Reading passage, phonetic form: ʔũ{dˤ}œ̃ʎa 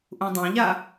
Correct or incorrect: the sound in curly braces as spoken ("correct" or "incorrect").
correct